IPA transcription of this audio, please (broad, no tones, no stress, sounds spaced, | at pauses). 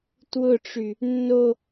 t w ʊ ʈ͡ʂ y | nː o